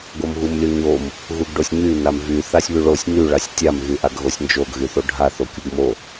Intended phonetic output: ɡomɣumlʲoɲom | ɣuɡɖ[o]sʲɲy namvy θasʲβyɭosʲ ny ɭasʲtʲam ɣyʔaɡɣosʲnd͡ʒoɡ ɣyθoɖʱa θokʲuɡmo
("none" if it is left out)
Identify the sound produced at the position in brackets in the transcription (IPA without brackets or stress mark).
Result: o